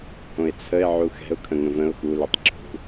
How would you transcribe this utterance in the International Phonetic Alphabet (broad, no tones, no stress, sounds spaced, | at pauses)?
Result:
h õ ɪ̯ t͡sʰ ə ɪ̯ ʕ u x ɛ̤ ʊ̯ kʰ ə̃ ŋ ə̃ v ə̃ ʊ̯ x u l u tˤ ǁʰ ṳ